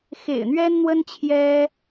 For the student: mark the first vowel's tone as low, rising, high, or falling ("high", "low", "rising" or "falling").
low